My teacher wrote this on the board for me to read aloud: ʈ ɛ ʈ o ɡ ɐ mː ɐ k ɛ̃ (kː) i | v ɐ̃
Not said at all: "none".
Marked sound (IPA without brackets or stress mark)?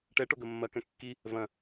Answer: kː